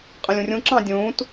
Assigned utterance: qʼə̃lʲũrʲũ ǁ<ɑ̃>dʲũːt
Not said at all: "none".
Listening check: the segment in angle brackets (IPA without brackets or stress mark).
ɑ̃